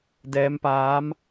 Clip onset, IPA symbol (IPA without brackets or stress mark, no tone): d